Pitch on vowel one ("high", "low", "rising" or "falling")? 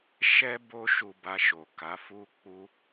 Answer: high